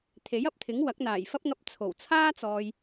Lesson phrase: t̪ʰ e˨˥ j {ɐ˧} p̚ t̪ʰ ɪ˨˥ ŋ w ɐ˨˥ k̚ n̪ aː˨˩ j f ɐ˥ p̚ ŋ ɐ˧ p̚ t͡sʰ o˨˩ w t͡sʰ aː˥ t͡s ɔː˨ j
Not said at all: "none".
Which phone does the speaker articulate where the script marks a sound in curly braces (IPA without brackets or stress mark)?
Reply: ɐ˧